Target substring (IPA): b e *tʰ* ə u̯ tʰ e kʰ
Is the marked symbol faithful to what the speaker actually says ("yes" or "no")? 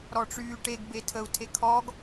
yes